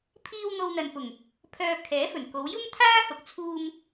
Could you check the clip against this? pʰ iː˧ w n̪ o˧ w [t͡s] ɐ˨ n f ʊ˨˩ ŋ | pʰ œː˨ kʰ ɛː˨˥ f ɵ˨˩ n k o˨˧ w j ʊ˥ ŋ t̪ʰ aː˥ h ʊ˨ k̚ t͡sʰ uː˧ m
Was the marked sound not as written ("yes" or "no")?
yes